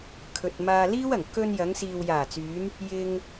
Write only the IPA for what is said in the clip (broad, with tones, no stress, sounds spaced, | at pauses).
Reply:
kʰ ɵ˨ t̚ m aː˧ l iː˥ w ɐ˨˩ ŋ k ɵ˧ n j ɐ˨˧ ŋ s iː˨ w j aː˨˩ t͡s yː˨˧ n | j ɪ˧ ŋ